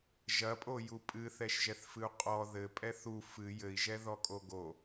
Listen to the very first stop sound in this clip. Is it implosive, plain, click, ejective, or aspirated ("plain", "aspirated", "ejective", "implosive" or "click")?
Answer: ejective